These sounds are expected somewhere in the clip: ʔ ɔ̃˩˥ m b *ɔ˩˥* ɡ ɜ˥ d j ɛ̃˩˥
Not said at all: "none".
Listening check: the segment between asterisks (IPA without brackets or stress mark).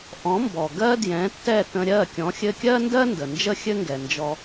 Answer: ɔ˩